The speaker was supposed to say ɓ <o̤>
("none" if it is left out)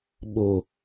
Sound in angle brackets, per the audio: o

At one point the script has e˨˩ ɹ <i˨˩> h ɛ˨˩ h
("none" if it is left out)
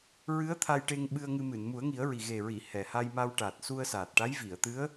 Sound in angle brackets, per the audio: i˨˩˨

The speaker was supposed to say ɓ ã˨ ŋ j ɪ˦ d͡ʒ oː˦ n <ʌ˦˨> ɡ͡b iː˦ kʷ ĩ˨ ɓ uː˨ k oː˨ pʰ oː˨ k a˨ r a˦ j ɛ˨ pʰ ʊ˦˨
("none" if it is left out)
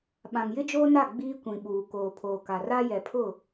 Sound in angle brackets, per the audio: a˦˨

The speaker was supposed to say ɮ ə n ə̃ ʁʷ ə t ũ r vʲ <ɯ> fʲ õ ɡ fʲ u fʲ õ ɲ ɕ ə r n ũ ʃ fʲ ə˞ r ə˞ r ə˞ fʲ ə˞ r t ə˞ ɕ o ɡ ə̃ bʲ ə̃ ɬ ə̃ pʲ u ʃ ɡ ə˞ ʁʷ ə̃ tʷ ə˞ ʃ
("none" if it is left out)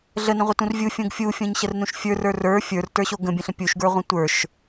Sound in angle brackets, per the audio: u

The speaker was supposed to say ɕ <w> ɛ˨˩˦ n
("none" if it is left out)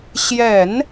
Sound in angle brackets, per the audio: j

